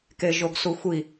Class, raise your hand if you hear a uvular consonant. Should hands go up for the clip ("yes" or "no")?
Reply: no